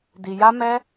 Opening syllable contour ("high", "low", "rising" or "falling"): low